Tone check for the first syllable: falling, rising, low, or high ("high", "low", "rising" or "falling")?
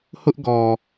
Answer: high